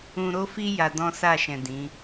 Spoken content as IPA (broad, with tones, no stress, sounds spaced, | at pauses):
ũ˧ ɾ o˦ f i˦ j a˧ d ɔ̃˦ s a˦˨ ʃ ɛ̃˨ d ĩ˨˦